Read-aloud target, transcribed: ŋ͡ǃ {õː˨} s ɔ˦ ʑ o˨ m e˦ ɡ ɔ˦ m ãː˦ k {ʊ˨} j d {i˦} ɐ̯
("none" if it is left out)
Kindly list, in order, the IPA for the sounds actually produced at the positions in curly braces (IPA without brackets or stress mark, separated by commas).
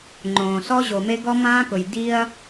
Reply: õː˨, ʊ˨, i˦